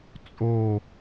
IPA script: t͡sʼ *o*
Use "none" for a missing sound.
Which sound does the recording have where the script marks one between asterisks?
o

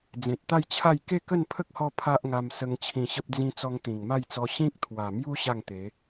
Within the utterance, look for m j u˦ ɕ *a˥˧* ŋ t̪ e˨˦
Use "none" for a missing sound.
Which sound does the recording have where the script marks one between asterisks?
a˥˧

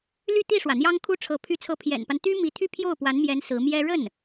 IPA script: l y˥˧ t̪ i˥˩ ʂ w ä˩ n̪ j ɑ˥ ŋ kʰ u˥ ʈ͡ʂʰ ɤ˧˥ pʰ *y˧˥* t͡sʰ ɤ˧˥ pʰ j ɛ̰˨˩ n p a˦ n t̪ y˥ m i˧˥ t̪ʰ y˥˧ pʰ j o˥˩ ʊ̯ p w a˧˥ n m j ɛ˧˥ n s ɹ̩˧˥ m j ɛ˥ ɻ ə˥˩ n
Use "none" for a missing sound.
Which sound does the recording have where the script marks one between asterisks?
y˧˥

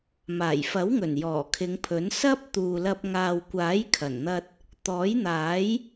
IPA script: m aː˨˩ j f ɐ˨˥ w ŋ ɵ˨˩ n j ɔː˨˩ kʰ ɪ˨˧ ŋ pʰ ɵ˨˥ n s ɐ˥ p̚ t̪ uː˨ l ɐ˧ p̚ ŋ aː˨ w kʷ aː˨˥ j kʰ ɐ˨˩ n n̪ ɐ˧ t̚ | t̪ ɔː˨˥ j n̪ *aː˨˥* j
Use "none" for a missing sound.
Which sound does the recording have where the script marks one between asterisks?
aː˨˥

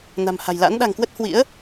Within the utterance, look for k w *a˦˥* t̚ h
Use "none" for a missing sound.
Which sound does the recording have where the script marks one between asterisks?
ə˦˥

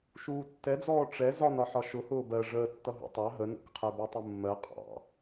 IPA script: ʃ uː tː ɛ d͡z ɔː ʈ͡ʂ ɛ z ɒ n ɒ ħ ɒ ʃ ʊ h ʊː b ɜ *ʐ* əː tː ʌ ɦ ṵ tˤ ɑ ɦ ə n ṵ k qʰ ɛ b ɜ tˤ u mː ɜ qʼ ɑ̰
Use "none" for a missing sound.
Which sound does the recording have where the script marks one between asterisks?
ʐ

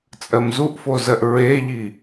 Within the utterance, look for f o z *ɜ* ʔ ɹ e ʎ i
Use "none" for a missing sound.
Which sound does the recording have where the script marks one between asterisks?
ɜ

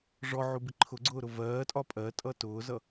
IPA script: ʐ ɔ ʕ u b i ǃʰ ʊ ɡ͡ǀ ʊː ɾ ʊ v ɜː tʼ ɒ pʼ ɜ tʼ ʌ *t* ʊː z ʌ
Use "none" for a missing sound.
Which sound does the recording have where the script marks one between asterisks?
t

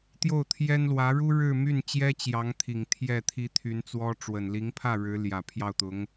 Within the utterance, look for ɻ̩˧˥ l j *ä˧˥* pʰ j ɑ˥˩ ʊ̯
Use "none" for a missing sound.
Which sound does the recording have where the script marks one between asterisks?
ä˨˩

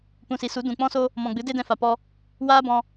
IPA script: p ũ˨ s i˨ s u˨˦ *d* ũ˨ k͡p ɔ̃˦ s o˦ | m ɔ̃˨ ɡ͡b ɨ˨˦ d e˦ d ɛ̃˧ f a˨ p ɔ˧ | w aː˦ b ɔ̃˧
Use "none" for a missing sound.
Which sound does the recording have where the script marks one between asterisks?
d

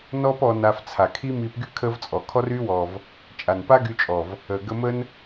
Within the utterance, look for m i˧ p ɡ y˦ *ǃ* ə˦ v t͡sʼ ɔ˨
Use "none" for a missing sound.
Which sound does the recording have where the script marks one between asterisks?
kʰ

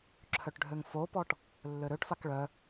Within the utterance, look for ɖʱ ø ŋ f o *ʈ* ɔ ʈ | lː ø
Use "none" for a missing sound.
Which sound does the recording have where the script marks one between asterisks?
p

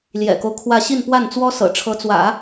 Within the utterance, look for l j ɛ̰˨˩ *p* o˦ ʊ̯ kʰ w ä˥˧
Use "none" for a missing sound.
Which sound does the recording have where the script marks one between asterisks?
k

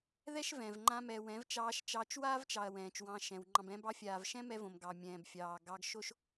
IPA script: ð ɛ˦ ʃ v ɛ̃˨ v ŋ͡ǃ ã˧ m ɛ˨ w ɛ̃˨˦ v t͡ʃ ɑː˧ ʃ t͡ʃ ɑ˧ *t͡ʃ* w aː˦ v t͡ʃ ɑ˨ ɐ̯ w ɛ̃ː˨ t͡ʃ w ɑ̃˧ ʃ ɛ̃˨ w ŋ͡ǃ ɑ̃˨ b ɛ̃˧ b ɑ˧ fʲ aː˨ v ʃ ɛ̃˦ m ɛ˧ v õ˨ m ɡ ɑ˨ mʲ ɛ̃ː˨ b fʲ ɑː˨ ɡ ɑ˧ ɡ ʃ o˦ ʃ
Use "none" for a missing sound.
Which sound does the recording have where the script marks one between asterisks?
t͡ʃ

